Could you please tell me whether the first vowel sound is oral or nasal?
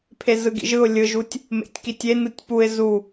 oral